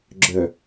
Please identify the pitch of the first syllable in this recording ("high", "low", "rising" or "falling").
low